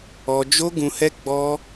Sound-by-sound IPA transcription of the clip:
ɔ˦ d͡ʒ o˦ ɡ ũ˧ h ɛ˦ ɡ͡b ɔ˦

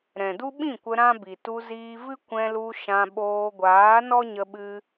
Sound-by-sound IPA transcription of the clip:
ɾ ɛ̃˨ d u˦ ɓ ĩ˦˨ kʷ ə˧ ɾ ã˦ b i˨ t u˧ z iː˧ v ɨ˦ kʷ ɛ̃˧ l u˧ ʃ ã˧ ɓ oː˧ ɡʷ aː˨˦ n ɔ˦ ɲ ə˧ ɓ ɨ˧

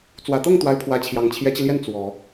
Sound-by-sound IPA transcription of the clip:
t͡s w ä˨˩ t̪ ɤ˥˩ ŋ t̪ w a˧˥ ɪ̯ pʰ w ä˧˥ t͡ɕʰ j ɑ˨˩ ŋ t͡ɕʰ j ɛ˧˥ t͡ɕ i˧ l j ɛ˥˩ n t͡s w ɔ˨˩˦

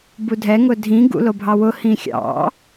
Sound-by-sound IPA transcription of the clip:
b u dʱ ɛ ŋ ʊ dʱ ĩ ɡ ṵ l o bʱ ɑ w ʊ h ĩ xʲ ɑ̰

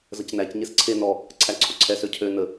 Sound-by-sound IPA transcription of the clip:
z ə c n æ c ɲ e s ǀʰ e n ɔ | ǀʰ æ ǀʰ o ǀʰ ɛ s ø cʰ ø n ə

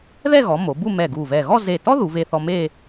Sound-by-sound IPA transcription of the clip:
ð ɛ˥˧ ɣ ɔ˩˧ m o˩˧ b u˥˧ m ɛ˧˩ ɡ u˧˩ v ɛ˧˩ ɣ ɔ˥˧ z e˧˩ t ɔ˥ ð u˩˧ v e˧ θ ɔ˧ m e˥˧

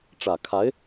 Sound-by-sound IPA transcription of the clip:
ʈ͡ʂ ä˨˩ kʰ a˧˥ ɪ̯

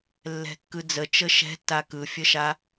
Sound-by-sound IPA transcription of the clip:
lː ɛ̤ kː ɯ d͡z ə t͡ʃ ə ʃ ɛ̤ tː a k ɯ fʲ ə ʃ a

